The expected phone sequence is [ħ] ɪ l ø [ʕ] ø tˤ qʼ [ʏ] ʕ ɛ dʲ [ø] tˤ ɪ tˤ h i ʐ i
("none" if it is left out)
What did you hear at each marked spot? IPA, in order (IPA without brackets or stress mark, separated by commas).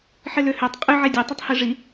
ħ, h, ʏ, ø